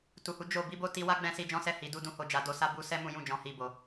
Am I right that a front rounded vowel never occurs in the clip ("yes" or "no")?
yes